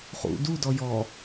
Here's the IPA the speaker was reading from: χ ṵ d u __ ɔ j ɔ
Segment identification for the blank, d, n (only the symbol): d